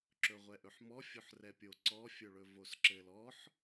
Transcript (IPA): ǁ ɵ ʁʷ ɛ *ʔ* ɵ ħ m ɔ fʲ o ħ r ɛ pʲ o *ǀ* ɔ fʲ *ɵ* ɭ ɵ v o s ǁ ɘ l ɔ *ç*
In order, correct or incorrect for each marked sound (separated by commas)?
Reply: correct, correct, correct, incorrect